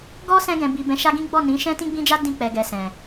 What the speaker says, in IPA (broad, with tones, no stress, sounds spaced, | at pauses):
ɡ ɔ˦ s ɛ̃˧ ɡ ɛ̃˨ b i˨ b ɛ̃˨˦ ʃ a˦ ɡ ĩ˦ ɡ͡b ɔ˦˨ n ĩ˨˦ ʃ ɛ̃˦ t ĩ˦ ɡ͡b ĩ˦ d͡ʒ a˦ d ĩ˧ k͡p ɛ˨ ɡ ɛ˨ s ɛ̃˨